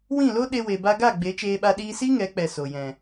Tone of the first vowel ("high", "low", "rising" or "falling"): falling